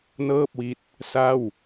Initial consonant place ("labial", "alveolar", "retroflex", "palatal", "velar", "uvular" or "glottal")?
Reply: alveolar